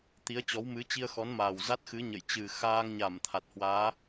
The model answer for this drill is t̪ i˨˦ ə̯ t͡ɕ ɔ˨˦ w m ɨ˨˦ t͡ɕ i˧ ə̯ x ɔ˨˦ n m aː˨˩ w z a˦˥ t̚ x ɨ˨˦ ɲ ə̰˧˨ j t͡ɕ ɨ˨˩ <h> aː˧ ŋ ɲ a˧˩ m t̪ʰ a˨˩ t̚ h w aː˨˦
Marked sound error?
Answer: yes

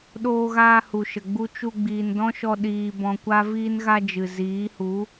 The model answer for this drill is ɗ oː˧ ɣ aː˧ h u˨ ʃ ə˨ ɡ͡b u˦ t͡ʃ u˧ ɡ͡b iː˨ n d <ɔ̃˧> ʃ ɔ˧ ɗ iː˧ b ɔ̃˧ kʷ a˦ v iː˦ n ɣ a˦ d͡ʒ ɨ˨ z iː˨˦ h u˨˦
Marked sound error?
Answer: yes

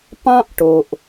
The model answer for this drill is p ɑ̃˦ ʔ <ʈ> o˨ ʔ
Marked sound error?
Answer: no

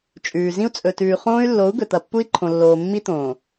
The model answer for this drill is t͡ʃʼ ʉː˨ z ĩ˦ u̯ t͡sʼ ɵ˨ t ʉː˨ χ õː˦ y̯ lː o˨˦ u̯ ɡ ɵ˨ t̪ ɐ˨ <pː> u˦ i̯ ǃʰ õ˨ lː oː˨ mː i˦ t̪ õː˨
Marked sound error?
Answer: no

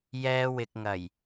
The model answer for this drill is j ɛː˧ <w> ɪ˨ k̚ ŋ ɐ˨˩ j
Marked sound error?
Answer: no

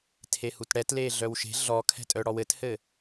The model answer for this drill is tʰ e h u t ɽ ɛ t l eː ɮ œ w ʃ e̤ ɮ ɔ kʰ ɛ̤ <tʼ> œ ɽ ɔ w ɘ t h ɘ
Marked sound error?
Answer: no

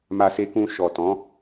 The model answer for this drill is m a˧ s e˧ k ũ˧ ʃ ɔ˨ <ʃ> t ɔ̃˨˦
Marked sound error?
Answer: yes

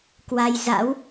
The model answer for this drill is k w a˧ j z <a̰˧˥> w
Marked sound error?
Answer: no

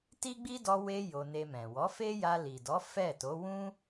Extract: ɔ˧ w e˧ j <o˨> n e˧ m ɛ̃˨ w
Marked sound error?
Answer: yes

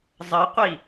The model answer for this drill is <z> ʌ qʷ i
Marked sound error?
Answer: yes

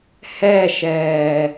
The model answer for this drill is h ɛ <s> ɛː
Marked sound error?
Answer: yes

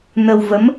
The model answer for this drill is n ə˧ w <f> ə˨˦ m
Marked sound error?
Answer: yes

